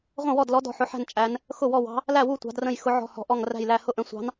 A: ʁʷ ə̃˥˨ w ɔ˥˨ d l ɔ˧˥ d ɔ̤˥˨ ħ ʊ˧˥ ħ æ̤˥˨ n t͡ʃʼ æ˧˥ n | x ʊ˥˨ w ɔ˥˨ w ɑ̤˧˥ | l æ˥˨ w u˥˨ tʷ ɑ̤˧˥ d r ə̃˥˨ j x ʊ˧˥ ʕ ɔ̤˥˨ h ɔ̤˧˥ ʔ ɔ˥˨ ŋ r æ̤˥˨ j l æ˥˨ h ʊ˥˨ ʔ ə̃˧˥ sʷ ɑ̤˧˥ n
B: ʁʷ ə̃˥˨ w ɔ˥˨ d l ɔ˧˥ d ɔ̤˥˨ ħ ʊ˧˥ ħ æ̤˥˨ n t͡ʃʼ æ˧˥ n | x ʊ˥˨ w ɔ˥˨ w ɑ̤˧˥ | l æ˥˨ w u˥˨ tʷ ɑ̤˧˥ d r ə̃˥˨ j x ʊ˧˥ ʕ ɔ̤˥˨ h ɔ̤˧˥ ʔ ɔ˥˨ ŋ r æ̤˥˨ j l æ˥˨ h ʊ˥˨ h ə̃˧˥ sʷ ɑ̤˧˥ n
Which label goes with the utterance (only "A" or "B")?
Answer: A